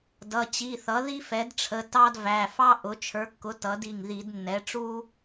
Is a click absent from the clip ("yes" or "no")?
yes